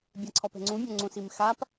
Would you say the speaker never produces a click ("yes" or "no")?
no